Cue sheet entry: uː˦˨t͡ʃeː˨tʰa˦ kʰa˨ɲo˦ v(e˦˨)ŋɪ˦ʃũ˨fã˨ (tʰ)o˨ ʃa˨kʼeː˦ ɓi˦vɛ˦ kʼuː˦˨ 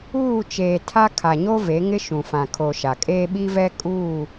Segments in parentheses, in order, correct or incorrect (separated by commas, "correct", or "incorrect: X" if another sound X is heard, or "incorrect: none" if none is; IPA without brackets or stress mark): incorrect: e˨˦, incorrect: kʰ